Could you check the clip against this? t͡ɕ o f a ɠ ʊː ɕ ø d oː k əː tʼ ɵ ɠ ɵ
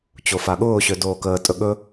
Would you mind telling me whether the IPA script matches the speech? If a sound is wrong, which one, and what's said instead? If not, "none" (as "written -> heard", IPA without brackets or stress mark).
none